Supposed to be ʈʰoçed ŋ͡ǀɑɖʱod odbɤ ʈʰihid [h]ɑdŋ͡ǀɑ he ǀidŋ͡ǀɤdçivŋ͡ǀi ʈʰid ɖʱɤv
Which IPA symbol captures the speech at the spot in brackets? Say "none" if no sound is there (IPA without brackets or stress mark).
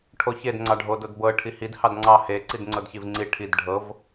h